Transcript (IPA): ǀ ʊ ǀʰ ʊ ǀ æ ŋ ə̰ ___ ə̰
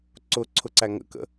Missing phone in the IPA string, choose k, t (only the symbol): k